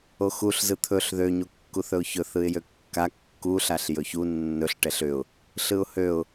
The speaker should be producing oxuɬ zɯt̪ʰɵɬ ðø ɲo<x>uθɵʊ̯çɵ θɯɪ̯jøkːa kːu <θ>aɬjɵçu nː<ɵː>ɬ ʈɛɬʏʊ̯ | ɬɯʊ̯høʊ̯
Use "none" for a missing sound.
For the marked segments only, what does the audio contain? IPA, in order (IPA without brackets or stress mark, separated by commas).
kː, ɬ, ɵ